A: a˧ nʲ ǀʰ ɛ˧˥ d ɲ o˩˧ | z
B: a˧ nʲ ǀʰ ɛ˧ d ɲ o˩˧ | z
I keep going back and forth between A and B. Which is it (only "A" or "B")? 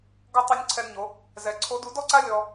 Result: B